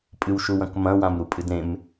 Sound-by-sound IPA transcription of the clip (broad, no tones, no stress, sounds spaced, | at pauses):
pʼ ɨ w ʃ u w ɐ̃ k m ɐ̃ w ã m ɾ u pʼ ɨ d ɾ ẽ m